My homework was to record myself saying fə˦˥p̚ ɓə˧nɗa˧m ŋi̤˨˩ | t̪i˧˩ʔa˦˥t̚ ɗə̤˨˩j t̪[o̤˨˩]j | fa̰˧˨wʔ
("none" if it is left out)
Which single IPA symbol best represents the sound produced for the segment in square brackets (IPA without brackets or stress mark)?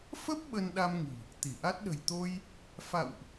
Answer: o˧